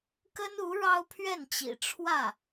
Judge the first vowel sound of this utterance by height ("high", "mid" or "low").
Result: mid